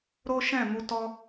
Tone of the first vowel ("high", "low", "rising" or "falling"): high